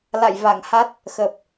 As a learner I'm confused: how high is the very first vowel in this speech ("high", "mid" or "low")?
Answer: low